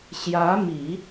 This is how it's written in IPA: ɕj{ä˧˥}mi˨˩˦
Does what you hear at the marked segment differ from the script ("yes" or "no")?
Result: no